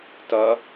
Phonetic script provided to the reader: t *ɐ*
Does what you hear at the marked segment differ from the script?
no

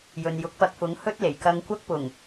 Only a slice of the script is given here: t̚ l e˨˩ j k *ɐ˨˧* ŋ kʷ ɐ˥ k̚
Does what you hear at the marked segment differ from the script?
yes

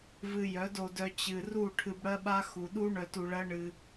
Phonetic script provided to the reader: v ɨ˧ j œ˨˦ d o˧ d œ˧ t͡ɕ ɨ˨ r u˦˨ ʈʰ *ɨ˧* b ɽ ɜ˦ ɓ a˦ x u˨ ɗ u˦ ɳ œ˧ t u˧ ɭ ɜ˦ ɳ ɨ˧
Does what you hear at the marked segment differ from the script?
no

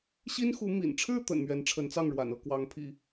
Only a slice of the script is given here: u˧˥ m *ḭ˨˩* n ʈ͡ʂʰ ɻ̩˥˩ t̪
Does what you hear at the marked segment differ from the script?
no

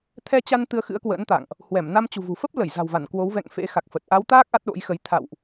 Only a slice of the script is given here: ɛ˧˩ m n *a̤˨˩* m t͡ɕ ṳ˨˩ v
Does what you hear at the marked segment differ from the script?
yes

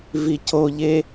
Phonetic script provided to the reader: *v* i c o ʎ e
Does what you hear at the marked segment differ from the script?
no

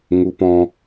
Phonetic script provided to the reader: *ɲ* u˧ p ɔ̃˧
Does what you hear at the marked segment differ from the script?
yes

